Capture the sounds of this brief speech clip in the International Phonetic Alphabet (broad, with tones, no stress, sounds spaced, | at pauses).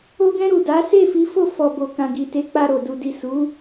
o˧ ɡ ɛ̃˧ ɾ u˨ d a˨˦ s e˦˨ f i˨˦ f o˦˨ f ɔ˨ b o˨ k ã˨ ɡ i˨ t e˨˦ k͡p a˧ ɾ o˨ d u˨ d i˨ s u˨˦